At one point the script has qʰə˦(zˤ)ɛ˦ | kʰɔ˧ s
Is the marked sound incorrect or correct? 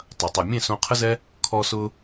incorrect